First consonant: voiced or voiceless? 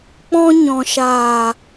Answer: voiceless